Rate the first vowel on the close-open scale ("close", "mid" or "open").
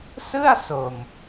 close